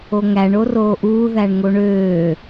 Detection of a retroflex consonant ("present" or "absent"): present